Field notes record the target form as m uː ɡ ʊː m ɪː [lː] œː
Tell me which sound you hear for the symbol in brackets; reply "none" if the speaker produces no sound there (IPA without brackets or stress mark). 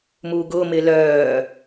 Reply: l